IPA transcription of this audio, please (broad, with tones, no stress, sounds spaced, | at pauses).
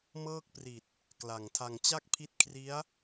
m ɤː˥˩ k̚ p r i˨˩ t̚ | k l a˨˩ ŋ tʰ a˧ ŋ t͡ɕ a˥˩ k̚ pʰ i˦˥ t̚ kʰ r i˦˥ a̯